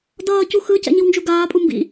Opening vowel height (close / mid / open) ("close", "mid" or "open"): mid